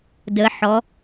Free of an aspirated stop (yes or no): yes